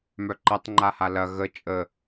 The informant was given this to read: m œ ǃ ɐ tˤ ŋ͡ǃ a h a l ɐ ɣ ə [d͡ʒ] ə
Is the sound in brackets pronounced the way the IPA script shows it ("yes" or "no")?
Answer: no